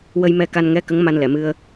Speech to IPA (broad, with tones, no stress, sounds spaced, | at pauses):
w ə˧ j m ɛ˧ k a˧ n ŋ ɛ˧˥ k ə˧˥ ŋ m a˧ n l ɛ˨˩˨ m ɨ˧ ə̯